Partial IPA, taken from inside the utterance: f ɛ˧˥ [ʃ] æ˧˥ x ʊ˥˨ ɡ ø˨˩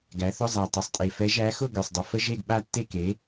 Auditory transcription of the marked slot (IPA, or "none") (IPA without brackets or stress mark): ʒ